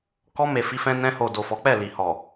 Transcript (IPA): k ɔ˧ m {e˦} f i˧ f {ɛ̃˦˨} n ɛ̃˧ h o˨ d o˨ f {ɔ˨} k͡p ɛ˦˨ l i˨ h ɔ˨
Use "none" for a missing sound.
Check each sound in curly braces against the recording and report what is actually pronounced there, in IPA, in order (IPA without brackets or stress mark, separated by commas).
e˨, ɛ̃˧, ɔ˨˦